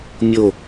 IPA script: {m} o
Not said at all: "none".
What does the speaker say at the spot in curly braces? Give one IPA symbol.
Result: mʲ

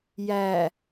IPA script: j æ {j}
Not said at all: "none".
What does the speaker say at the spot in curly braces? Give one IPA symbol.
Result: none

